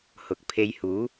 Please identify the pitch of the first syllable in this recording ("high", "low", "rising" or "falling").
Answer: rising